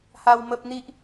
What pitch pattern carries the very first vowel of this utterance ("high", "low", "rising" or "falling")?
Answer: high